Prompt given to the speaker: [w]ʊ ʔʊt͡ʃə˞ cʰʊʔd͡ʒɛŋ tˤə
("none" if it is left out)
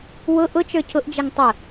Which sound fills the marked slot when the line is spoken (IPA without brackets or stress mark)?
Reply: w